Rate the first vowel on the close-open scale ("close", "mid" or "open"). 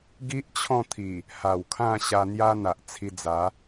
close